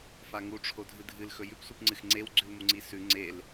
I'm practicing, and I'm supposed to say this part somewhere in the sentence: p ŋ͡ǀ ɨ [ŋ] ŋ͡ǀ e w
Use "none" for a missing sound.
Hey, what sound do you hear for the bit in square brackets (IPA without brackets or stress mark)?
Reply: x